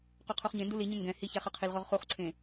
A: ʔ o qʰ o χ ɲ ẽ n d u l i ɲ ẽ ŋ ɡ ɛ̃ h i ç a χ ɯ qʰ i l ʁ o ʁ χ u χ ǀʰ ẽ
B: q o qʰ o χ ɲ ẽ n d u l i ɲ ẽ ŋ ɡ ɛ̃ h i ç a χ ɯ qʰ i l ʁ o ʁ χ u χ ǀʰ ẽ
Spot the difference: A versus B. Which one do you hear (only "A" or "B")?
B